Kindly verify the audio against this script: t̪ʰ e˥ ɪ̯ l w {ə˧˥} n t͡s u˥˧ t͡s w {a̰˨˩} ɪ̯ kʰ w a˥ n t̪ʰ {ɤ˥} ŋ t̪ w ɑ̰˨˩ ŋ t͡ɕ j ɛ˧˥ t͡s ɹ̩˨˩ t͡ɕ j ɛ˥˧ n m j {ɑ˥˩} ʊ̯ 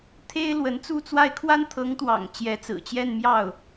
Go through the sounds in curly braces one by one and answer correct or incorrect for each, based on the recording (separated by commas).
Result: correct, incorrect, incorrect, correct